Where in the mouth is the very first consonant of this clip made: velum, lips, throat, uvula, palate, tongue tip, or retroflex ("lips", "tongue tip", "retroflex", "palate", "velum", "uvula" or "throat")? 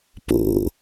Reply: lips